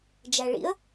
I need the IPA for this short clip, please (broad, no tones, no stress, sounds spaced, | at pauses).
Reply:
d͡ʒ æ ɭ ḭ ə̯